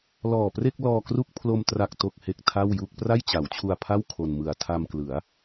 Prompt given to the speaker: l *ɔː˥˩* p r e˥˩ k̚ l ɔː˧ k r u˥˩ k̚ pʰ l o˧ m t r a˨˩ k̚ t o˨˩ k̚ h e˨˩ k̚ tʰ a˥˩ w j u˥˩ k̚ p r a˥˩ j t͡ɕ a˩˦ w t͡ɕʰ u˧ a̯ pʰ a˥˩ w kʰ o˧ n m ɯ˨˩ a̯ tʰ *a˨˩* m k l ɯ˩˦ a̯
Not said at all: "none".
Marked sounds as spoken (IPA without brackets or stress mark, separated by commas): ɔː˨˩, a˧